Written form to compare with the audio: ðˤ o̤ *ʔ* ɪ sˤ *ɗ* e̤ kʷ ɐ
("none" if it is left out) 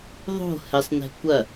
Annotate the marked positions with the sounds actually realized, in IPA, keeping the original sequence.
h, n

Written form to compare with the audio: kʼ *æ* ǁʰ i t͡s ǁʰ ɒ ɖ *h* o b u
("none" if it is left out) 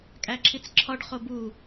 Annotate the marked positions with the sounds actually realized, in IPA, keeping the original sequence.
æ, χ

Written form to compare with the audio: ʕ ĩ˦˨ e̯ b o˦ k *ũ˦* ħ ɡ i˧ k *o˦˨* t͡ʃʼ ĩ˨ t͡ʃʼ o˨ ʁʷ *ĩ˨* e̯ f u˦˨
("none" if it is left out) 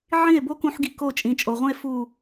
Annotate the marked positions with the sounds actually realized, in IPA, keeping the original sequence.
ũ˦, o˦˨, ĩ˦

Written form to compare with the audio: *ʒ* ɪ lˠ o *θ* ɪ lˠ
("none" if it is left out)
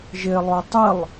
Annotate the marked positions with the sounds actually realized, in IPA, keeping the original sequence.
ʒ, tˤ

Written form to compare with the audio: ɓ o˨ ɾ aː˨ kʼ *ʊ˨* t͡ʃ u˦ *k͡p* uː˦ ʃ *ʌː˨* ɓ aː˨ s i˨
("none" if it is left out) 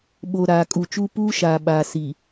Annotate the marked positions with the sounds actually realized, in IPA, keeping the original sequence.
u˨, p, aː˨

